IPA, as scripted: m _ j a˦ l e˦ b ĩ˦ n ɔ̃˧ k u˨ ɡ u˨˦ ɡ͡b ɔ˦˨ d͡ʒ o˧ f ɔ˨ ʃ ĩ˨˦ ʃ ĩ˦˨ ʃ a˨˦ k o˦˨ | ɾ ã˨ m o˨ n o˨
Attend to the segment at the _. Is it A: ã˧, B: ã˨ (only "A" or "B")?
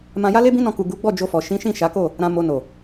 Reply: A